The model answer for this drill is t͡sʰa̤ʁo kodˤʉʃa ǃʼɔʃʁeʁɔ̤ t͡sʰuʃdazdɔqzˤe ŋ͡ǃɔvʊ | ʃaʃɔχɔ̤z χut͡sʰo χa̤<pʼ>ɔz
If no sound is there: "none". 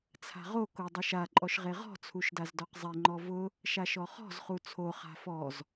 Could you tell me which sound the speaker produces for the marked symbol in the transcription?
f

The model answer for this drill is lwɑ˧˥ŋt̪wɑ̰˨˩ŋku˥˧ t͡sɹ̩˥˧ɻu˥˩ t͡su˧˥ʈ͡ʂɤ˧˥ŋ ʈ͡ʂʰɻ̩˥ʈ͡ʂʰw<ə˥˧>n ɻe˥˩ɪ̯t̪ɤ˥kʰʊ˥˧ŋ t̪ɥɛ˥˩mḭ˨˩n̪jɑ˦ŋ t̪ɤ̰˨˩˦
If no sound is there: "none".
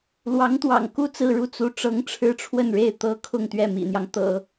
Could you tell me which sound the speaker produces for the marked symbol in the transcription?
ə˥˧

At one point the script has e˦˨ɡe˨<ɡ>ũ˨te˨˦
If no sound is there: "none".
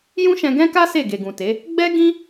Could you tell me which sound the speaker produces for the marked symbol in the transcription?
ɡ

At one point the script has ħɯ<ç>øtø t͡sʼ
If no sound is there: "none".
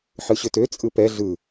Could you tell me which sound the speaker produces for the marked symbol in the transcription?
ɕ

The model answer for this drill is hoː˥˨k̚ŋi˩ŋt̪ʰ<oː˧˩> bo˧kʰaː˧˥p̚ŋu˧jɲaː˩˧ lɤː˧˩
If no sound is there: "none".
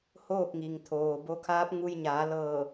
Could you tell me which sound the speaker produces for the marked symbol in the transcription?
oː˩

